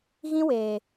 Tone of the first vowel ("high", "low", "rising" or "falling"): high